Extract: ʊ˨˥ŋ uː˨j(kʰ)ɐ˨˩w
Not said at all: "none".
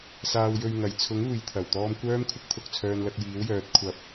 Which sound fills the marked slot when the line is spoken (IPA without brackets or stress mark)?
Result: t̪ʰ